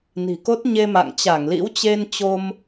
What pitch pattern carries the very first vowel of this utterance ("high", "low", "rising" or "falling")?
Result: low